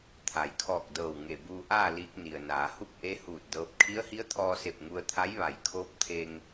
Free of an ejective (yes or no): yes